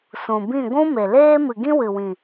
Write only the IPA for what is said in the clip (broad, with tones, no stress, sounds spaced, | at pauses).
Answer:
s ũ˨ b ĩ˦˨ ɡʷ ũ˦ m e˨ l eː˦ m ɨ˨ ɡ ĩ˦ w ɨ˨ w ĩ˨